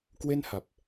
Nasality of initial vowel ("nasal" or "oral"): oral